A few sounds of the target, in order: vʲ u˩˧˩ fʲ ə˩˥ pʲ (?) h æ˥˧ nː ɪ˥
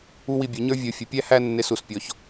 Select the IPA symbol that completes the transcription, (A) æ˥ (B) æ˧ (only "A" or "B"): A